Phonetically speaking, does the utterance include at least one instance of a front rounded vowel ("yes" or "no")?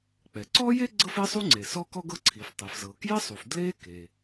no